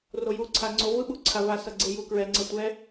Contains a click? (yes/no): yes